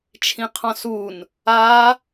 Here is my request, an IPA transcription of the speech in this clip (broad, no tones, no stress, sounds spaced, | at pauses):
t͡ʃʰ ĩ qʰ ɔ̃ s u n | a